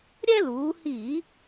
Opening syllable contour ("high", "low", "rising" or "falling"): high